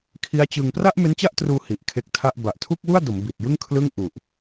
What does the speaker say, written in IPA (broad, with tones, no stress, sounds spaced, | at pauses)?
kʰ i˦˥ a̯ t͡ɕ ɯ˧ ŋ p r a˥˩ ʔ m e˦˥ n t͡ɕ a˥˩ ʔ t r uː˧ h i˨˩ ʔ kʰ e˦˥ k̚ tʰ a˥˩ ʔ b a˨˩ ʔ tʰ u˥˩ k̚ w u˥˩ a̯ d o˩˦ m b i˨˩ t̚ j ɯ˥˩ ŋ kʰ l ɯ˥˩ ŋ ʔ u˨˩ ʔ